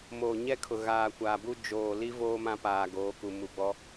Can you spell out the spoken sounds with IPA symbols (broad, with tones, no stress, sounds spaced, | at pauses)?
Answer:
m oː˨ ɲ ɛ˦ kʰ ʊ˨ ɣ aː˨ kʷ aː˨ b u˦ d͡ʒ oː˨ l i˦ v oː˦ m ã˦ p aː˨ ɡ oː˨˦ k u˨ m u˨ ɡ͡b ɔ˦